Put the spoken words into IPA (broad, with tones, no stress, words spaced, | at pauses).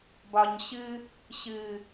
bɒ˨ɲɕɨ˧ | ɕɨ˨